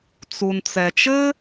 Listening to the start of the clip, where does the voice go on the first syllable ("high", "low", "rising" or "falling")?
low